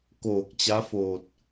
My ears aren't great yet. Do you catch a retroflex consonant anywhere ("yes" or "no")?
no